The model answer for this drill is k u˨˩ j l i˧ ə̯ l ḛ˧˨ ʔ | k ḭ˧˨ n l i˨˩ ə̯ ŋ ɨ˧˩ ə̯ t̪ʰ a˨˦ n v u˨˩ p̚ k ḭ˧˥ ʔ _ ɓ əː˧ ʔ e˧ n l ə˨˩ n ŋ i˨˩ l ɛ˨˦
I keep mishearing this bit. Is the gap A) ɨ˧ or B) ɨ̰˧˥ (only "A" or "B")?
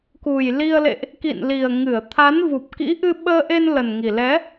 A